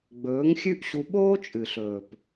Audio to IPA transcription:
ɡ͡bɵː˨˦ŋxʲʉ˦ʔɕu˧ ɓoː˦t͡ʃʼɨ˨ɬɵː˨p

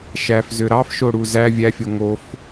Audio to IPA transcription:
ʃæfzø ɾɑfʃoɽu zæ vʲæfʲo ŋof

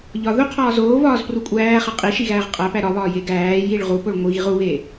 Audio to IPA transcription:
ʎɒðu qʰɒːzoːvɒːz prukʷʼæːχe qʼi ʃiɣæːʁqʼæpæ ɾɒβɒː jeɡæːjiɭ ʁupoɭ ŋʷiɣiʁ uβe

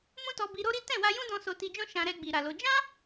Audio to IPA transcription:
mũ˦tɔ˧ bi˧ɾo˦ɾi˦ tɛ̃˦˨wa˧jũ˦dɔ̃˧ so˧ti˧d͡ʒɔ̃˦ ʃã˧ɾɛ˧ɡ͡bi˨ ɾa˨lo˧ d͡ʒã˦

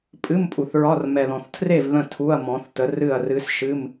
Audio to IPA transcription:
pʼɨ˧˥˧mpʼu˨θɹɒ˧˥˧r mɛ˨ðɔ̃˨θtʰre˥˨v ðə̃˥˨tʰu˧˥˧ɐ̯ mɔ̃˨˥θtə˨˥rɨ˥˨ɐ̯ rɨ˦˥s ʃɨ˧˥˧m

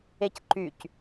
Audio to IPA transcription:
ecǃyc

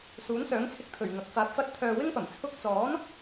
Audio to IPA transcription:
suː˨˥nsœː˨˥ŋt͡sʰɪ˧k̚t̪ʰɵ˨˩ɥ ŋɐ˨k̚faː˧p̚fɐ˥t̚ t̪ʰœː˧wɪ˥ŋpɐ˨˩m t͡sʰʊ˧k̚t͡sɔː˨˥n

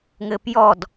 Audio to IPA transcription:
ŋɘpjɔd

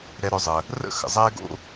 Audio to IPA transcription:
ɾɛ˨ɾœ˨zˤə˩ | rə̰˥ xə̰˩zˤɛː˦ɡo̰˦

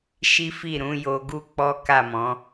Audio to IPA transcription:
ʃi˦fi˦˨ ɾũ˨˦jo˧ɡu˦ k͡pɔ˦ka˦˨mɔ̃˨˦

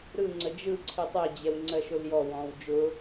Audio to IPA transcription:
ɾɯŋ͡ǀə d͡ʒɯ ǀʰɨtˤɛd͡ʑɛw ŋ͡ǀɜʃʊljɔwɔ̃ːw d͡ʒʊ

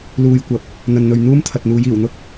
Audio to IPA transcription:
luː˨jkʷɐ˨˥p̚ | n̪ɐ˨nn̪ɵ˨ɥ n̪uː˥mt̪ʰɐ˨t̚n̪uː˨˧j iː˨˩wn̪ʊ˥k̚

